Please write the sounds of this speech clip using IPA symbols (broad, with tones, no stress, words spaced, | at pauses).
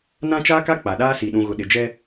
nã˦t͡ʃaː˦ka˦ k͡pa˨ɗaː˦si˨ ɗũ˨ɣʊ˨ ɗɪ˨d͡ʒɛ˦